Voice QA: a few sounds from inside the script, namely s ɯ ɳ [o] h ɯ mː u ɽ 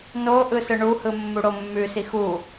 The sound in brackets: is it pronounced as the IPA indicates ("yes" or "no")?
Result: no